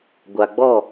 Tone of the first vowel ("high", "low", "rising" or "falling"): low